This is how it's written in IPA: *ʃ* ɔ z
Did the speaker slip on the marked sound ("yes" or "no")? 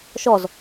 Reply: no